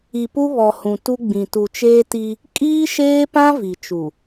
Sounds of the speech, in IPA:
i˨pu˦βɔ˨ hũ˨tu˦ɡ͡bĩ˨ tu˨t͡ʃeː˦ti˦ | kʼiː˦ʃeː˦pã˦ vi˨t͡ʃu˨

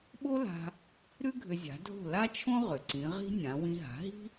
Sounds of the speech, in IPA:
ɓo˥la̤˧ | ɾʉ˥ɡʱʏ˧zʲa̤˩˥dʱo̤˥˩ la˥t͡ʃʰõ˥ ʁʏ˩ǀĩ˩˥ʁi̤˥ nʲã˩˥ wĩ˧ɦa̤˩˥ɦi̤˥

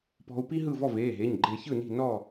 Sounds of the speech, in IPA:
pɔ̤˧u̯pi˥ ɦɯ˥˨ vɔ˥˨veː˩˧˩ɦe˩˧˩ɲ ɡ͡ǃe˧çɯ˥˨ni̤˥˨nɔ˥˨

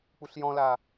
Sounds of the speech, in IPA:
k͡puɬjɔ̃la

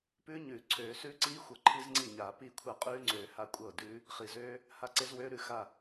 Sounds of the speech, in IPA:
pʉː˦˥ɲʉː˨˩˦ ǀʰøː˨˩˦sʉː˦˥ǀiː˦˥xʷɤ˨˩˦ ǃʰi˦˥zŋ͡ǀi˥˩ɲaː˨˩˦ piː˥˩kʷʰa˥˩ qʼʉː˦˥ŋ͡ǀøː˨˩˦ ha˥˩ kʷʼɤː˥˩dʉː˦˥ | χi˨˩˦zøː˦˥ | ha˦˥ǀe˦˥zwøː˦˥ ɾʉ˥˩xa˥˩

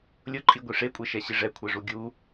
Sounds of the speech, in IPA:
lʲʊǃʼiɡʷi ʂekʷʼeʃɛɕi ʐɛkʷʰɛʐu ɡʲu

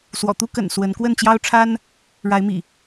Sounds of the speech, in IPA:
swɔ̰˨˩t̪u˦kə̰˨˩n swə˨˦n kwə˥˨nt͡ɕjɑ˦ʊ̯ʈ͡ʂʰa˦n | ɻa˨˦ɪ̯mḭ˨˩

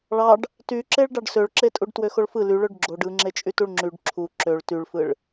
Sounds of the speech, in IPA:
ɭɑɖ | tyǁeɭ ɖɑɖsøɭǁetʼuɖ twøxoɭfɯ lyɭøɖ ɡ͡ǁoɖ ɯŋ͡ǁet͡ʃʼytuɭ ŋ͡ǁyɖ ǁʰu ǁøɭ tyɭfɯɭ

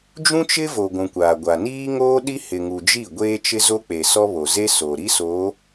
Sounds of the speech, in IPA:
d͡ʒũ˦t͡ʃɪ˦ vo˨ ɡʷũ˨kʷaː˨ɡʷa˨ niː˦ŋoː˦ɗi˦ hɪ˨ŋu˨d͡ʒi˦˨ ɡʷeː˦t͡ʃɪ˦ zo˦k͡pe˨sɔ˦ βo˨ze˦soː˨ɾi˦ soː˨˦

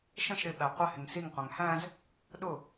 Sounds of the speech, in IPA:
ʃə̃ʃ ɾɪɓæ qʷɪhɪŋ siŋqʷæ̃ŋ hæ̃z | ɗʊ

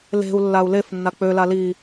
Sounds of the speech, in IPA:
le̤u̯ lːau̯lefnːa k͡pøla li

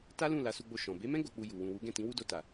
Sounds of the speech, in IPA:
ta˦lũ˦˨ la˨˦su˧ɡ͡bo˧ ʃɔ̃˨ be˨˦mɛ̃˦ ɡo˧k͡pu˧ju˨ wũ˨wu˨˦ɡɛ̃˦˨tĩ˨˦ wu˦do˧ta˨

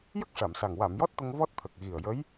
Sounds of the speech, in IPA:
jə˦˥k̚ʂa˨˩˨msa˨˩ŋ wa˨˩˨mjɔ˦˥t̚t̪ə˧ŋ vɔ˦˥t̚t̪ʰə˨˩k̚ ɣi˨˩ə̯jə˧˥j

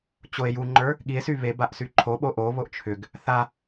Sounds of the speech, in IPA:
t͡ɕoe̯ juŋ͡ǃə˞ | ɠie̯sy βebaʔ syǃʰoɓo ʔoβoʔ t͡ʃʰʏɡ | θa

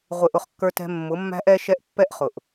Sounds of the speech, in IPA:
ʁʷɪ˨ ʔʊ˦χkːə˞˦tɛ̤˦ mːʊ˨˦mːæ̤˦ʔɛ˦ʃɛ˦ʔ pːɛ˦ʔχʊ˨ʔ

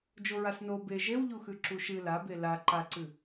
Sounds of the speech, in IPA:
d͡ʒoɹasno be ʒewʎuxʉ ǁuʃɨ la bela ǃaǀɨ

